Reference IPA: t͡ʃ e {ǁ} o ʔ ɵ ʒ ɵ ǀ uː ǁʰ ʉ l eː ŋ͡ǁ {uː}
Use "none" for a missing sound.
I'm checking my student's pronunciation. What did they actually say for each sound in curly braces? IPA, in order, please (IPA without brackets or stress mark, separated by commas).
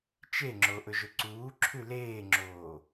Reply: ŋ͡ǁ, oː